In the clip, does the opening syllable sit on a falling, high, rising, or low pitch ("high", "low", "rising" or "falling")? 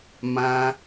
high